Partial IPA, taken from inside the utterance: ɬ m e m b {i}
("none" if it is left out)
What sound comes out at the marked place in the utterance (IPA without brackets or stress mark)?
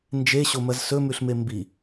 i